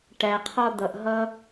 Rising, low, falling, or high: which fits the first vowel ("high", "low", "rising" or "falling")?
low